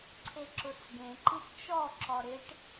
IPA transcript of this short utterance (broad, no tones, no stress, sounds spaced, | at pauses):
ǀʰ e ǁ ʊ t͡s ɡ ẽ ǃ i ʈ t͡ʃ ɔ ǁ ɔ ɾ ɪ ʈ